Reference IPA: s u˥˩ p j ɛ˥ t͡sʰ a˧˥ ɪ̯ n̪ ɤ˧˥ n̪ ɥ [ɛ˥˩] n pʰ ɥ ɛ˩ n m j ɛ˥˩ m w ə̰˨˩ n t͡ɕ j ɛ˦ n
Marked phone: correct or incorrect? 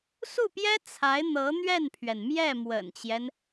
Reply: correct